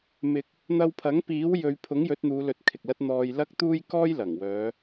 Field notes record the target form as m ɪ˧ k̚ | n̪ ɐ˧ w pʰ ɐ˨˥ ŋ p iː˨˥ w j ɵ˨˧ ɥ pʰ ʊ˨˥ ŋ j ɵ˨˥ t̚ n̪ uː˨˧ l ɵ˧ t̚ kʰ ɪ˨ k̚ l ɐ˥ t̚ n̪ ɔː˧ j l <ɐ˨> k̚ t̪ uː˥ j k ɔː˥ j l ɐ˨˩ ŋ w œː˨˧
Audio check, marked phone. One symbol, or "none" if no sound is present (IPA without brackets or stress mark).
ɐ˥